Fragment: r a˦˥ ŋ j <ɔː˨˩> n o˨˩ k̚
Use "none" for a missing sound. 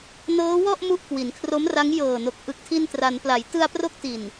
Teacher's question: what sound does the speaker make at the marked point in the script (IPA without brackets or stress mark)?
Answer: ɤː˨˩